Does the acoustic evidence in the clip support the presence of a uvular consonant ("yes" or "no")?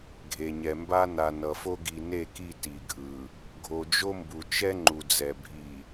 no